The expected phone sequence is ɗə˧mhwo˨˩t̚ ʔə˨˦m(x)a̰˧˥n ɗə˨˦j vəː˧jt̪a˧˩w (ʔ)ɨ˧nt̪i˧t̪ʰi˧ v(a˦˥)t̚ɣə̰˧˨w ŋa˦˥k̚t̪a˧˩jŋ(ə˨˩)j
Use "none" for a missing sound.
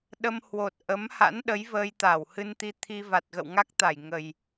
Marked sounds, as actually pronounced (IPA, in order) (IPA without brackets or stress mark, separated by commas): h, h, a˨˩, ə˨˩